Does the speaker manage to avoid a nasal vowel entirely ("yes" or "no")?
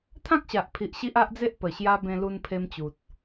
no